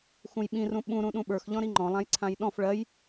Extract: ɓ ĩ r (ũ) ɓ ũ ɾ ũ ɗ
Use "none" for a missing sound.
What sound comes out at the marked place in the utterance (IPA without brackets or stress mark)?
ũ